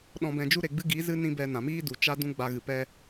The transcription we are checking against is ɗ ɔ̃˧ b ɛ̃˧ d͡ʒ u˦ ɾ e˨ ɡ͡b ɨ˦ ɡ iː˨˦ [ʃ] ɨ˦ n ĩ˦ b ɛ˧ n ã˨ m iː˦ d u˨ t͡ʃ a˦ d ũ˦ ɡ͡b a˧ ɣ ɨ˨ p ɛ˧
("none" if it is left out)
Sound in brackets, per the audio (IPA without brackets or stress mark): z